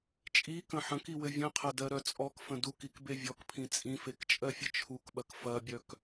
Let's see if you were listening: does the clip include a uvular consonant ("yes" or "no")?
yes